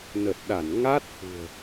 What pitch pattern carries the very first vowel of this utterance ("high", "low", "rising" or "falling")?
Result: low